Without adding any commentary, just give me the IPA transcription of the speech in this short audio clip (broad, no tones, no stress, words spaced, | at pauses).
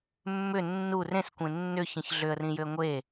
mːʏ nːur ẽskʷẽ nːʏçĩç ɮʏə̯rĩjʏə̯ ŋʷe